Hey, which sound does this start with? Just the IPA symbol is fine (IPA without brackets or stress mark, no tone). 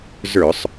z